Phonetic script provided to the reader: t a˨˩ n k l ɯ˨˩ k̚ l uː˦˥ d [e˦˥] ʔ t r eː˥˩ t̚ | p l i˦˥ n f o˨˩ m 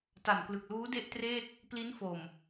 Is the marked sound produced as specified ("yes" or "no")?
no